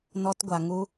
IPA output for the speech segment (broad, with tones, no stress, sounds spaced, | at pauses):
n ɔ˦ t ɡʷ a˧ ŋ u˦